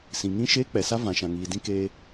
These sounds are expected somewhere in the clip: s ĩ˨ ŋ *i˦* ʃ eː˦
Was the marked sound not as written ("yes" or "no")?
yes